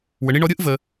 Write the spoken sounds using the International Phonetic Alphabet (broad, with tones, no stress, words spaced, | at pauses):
wə˨ɳi˦ɳɔ˦ ɾʲɯ˥ʔvə˨